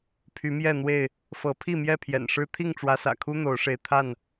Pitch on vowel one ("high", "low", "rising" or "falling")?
rising